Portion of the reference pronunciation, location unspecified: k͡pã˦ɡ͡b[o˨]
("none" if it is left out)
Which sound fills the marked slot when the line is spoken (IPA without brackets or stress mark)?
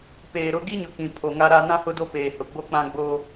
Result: o˦